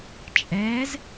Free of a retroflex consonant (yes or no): yes